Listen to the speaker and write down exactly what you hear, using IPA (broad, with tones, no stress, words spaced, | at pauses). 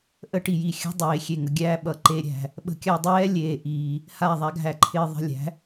ʔə˦ʈi˨ji˨xʲə̤˦ dˤeː˨ xʲe˨ ŋə˨ɡʲæː˧ɓʌ˨ ǃe˨ɾʲæ̤˨ | ɓə̤˧kʲa˧dˤɛː˦ lʲeː˨ʔiː˨ | ha˦˨ðˤa˦ɡʱæ˧ǃʰɪː˧ ðˤə̤˧lʲæ̤˨˦